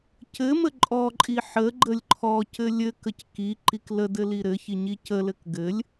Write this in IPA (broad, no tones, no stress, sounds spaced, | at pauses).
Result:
c ɘ m ə ǃʼ ɔ ǃʼ i ħ ə ɡ͡ǃ ə lʲ ǃʰ ɔ c ɘ lʲ ɘ k ə c k i ǃ i k l ə d ɘ l i ɾ ɘ ç i ɲ i c ə l ɘ k ɡ ɘ lʲ